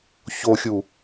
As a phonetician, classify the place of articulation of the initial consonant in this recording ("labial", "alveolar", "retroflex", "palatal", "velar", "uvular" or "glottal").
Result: palatal